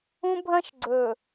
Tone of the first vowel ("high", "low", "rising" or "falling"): high